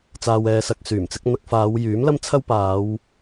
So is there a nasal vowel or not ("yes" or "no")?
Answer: no